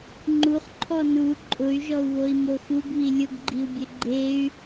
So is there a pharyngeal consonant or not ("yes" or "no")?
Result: no